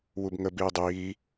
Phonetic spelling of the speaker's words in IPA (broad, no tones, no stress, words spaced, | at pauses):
wubŋə biːdˤiː